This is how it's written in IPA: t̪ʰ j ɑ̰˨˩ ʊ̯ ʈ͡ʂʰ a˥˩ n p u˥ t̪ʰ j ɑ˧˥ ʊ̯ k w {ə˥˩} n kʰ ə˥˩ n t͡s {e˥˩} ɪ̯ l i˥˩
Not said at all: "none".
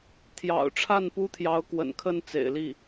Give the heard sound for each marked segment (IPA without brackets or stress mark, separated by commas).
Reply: ə̰˨˩, ḛ˨˩